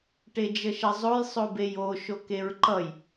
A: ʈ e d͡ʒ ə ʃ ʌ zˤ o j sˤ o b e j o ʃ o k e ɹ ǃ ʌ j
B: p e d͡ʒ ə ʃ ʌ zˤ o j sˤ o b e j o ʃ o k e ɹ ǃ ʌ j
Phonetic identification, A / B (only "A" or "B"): A